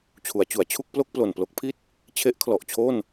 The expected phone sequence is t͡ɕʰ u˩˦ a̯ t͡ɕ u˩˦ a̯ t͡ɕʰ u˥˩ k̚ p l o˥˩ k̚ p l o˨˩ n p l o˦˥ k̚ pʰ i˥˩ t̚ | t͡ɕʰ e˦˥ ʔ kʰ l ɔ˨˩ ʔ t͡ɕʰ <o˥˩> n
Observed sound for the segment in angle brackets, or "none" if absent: o˥˩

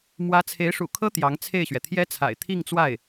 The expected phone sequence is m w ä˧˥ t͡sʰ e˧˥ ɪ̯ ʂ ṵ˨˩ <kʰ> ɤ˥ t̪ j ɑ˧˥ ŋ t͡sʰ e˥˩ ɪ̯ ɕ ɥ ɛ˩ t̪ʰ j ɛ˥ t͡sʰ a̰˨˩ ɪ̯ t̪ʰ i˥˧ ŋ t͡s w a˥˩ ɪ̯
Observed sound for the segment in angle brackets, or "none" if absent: kʰ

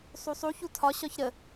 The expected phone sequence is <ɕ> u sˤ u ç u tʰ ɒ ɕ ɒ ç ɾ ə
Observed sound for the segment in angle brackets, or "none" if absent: sˤ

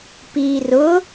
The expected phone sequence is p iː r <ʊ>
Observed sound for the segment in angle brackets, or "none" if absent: ʊ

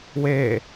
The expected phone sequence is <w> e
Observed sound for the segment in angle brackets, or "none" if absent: w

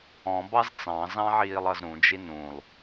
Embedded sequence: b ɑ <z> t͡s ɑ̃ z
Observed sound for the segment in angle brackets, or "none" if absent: z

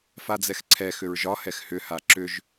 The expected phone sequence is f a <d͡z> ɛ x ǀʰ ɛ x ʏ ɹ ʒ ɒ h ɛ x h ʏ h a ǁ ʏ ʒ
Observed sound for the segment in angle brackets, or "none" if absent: d͡z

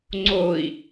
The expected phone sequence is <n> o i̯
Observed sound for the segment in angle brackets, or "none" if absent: ŋ͡ǀ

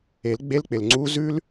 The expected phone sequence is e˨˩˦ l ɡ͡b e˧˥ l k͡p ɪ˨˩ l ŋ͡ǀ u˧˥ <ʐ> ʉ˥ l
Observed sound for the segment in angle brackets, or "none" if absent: z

